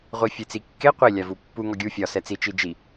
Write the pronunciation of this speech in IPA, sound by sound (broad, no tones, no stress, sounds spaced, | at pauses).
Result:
ʁʷ i fʲ e t͡s i kː e qʷ i lʲ a v u pː u ŋ ɔ ɡʲ u fʲ ɒ s ɛ t͡s i t͡ʃ i d͡ʒ i